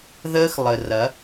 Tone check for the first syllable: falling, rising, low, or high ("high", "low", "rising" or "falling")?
high